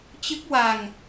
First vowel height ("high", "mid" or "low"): high